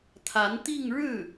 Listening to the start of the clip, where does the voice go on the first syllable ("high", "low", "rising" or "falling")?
rising